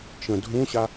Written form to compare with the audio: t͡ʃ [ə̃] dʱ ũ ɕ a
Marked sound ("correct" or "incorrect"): correct